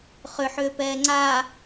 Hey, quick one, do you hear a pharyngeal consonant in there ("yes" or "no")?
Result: yes